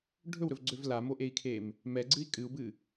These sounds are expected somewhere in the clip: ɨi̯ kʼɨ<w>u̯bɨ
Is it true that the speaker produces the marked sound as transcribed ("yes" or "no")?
no